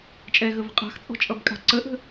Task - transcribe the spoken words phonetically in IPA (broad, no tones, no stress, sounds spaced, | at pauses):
t͡ʃʼ ɛ ɣ ə v ə̤ qʼ a̤ x t͡sʼ ɔ̤ t͡ʃʼ ʌ b kʼ a̤ ǀ ə ʔ ə̤